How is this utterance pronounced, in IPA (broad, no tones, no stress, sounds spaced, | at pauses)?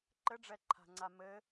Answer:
ǃ ɘ ɖ͡ʐ ɛ ǃʰ a̤ ŋ͡ǀ a m ɘ